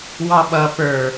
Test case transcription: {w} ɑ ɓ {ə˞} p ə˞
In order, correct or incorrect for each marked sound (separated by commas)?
correct, incorrect